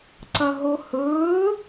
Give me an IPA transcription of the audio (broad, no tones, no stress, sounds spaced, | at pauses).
ǀ ɐ ɦ o h ɵː